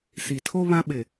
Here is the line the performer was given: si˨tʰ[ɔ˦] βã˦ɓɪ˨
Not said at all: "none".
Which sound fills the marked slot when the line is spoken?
o˦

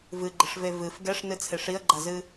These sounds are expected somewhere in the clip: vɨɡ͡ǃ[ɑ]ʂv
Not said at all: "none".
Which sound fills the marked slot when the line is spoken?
ə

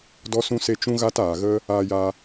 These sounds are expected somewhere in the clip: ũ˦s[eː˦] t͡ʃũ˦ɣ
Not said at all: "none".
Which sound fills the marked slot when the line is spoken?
e˦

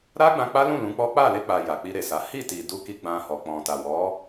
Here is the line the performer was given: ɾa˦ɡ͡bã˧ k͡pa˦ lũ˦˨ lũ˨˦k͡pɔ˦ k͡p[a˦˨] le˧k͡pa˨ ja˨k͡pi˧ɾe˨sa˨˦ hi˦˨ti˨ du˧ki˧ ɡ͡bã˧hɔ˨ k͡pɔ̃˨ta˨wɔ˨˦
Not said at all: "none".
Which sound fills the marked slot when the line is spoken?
a˦˨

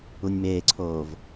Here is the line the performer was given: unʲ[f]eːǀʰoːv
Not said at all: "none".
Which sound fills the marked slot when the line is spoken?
m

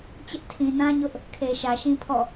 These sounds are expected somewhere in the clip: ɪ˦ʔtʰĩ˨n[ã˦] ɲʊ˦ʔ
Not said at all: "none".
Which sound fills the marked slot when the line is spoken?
ã˦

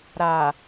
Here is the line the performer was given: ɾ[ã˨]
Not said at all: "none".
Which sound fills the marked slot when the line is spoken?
a˨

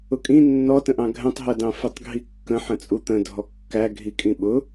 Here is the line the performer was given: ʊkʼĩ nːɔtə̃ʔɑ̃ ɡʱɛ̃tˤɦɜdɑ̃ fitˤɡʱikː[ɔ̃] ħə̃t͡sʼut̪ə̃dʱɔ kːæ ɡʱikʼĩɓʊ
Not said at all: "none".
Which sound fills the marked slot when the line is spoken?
ə̃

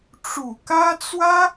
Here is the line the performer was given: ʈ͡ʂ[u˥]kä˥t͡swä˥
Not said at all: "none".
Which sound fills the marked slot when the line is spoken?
u˨˩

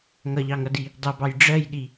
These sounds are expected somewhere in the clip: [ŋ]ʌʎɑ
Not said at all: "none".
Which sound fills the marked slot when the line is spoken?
ŋ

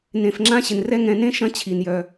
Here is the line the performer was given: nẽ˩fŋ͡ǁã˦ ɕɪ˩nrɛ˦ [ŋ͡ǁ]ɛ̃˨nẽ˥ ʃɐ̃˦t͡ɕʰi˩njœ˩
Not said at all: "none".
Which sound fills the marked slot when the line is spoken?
ŋ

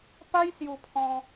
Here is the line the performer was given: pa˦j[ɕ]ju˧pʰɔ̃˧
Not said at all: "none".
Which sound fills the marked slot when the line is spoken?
s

